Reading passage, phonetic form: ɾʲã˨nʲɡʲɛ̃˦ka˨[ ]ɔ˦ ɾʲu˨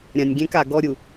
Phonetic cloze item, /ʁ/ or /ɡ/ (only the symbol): ɡ